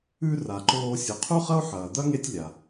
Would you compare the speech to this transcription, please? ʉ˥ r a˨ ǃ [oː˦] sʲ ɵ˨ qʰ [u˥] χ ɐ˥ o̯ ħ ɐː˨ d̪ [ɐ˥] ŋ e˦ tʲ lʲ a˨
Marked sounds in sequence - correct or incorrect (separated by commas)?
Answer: correct, correct, correct